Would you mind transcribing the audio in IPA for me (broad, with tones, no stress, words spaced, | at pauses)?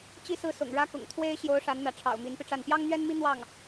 t͡ɕi˥˧sɹ̩˥˩sʊ̰˨˩ŋ ɻä˥kʊ̰˨˩ŋ t̪ʰwe˥ɪ̯ ɕjo˧˥ʊ̯ ʂa˧˥nn̪ä˧˥ʈ͡ʂʰɑ̰˨˩ʊ̯ mi˧˥npi˧ʈ͡ʂa˥˩n pjɑ˥ŋn̪ɥɛ˥nmi˥ n̪wɑ˥˩ŋ